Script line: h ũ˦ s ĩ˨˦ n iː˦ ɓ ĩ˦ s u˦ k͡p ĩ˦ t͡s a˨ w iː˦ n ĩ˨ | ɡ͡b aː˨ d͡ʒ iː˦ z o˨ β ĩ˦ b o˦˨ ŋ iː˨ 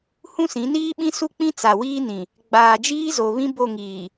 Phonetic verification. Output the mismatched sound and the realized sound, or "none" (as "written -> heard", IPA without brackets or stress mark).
none